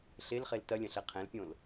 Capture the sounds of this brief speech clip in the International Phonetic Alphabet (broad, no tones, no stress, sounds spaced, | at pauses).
ɬ e l χ e l t ɐ lʲ ɐ̃ ɬ ɛ qʰ ɛ̃ l pʲ õ l